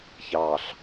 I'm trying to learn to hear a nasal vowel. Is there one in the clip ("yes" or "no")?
no